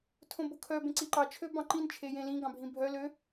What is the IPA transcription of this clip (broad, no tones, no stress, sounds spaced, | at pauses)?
tʰ õ b o kʰ œ b ẽ ǀ i ǃ ɑ t͡ʃʰ ø b ɑ̃ ǃ ĩ n t͡ʃʰ e j ẽ l ĩ ɡ ɑ̃ bʱ ĩ bʱ œ l ø